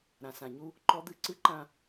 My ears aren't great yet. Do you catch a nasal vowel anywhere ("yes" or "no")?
yes